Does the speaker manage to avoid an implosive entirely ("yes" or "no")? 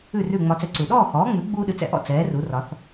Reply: no